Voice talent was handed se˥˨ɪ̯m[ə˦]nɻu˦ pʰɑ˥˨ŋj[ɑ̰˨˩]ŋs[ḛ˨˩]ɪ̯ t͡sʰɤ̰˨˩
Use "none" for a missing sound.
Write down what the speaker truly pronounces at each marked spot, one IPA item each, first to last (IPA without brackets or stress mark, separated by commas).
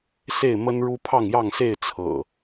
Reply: ə˦, ɑ˥˨, e˥˨